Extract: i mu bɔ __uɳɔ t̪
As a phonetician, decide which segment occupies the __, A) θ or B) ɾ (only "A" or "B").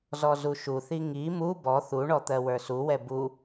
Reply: A